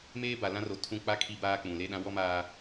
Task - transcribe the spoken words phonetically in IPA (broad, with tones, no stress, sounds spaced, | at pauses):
m eː˦ b a˨ l ã˦ r o˨ tʰ ũ˦ k͡p a˦ kʰ i˦ b aː˦ k͡p ũ˨ l e˦ ɗ ã˦ w ɔ˦ m aː˦